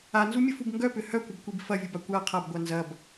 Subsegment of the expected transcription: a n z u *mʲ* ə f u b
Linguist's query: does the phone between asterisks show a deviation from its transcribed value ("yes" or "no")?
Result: no